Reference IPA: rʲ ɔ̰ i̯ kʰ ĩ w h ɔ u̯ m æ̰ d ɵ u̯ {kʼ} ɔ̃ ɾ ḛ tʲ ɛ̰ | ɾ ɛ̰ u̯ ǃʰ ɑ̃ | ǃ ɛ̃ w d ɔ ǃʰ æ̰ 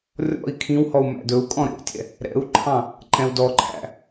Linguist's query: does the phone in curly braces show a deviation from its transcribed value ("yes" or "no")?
no